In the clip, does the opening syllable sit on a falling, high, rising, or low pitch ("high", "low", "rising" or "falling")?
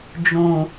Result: low